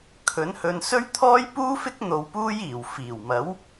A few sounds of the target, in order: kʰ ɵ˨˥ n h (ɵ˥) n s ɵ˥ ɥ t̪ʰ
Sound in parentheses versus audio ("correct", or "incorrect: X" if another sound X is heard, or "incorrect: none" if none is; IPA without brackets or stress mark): incorrect: ɵ˧